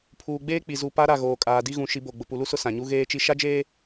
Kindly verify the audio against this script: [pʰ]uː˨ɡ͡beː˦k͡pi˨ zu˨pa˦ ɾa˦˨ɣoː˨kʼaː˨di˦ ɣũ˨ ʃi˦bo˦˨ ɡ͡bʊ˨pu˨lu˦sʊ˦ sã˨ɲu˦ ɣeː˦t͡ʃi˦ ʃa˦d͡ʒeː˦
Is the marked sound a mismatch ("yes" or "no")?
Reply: no